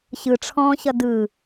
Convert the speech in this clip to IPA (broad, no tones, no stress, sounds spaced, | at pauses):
ɕ ɯ ʈ͡ʂʰ ɔ̃ː ɕ ʌ d ɯ